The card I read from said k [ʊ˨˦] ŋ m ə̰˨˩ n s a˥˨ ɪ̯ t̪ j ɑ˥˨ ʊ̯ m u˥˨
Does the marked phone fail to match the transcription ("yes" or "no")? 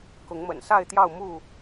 no